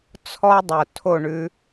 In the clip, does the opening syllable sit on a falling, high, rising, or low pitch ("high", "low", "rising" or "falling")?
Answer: high